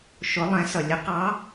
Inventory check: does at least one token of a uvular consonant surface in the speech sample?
yes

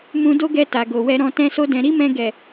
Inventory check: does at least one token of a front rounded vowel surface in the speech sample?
no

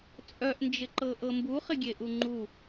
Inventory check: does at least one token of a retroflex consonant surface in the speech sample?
no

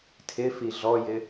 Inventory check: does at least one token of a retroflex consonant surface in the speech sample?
no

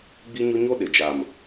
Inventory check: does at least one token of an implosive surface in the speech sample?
yes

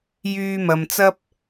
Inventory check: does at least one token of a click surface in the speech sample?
no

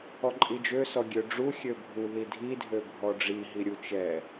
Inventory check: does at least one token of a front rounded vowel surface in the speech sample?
yes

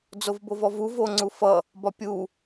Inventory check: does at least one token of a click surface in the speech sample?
yes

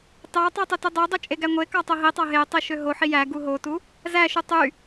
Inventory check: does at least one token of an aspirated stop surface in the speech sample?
no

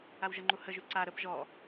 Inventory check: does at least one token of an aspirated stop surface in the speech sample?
no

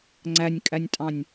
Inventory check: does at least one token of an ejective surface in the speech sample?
yes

